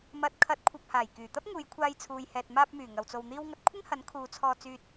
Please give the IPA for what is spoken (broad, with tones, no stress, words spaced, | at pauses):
mɐ˨t̚ kʰɐ˨˥t̚kʷʰɐ˨p̚haː˨˩j kyː˨˩t̪ɐ˥p̚ ŋuː˨˧jkʷʰaː˧j t͡sʰuː˨jhɛː˨t̚ maː˧p̚myː˨˩ ŋɐ˨wt͡so˧w n̪iː˥wŋɐ˥t̚ kʷʰɪ˥ŋhɐ˨˥n kʰuː˨˧t͡sʰɔː˧t͡syː˧t̚